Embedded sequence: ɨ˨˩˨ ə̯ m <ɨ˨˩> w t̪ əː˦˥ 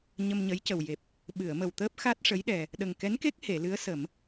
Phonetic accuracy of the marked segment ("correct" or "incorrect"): incorrect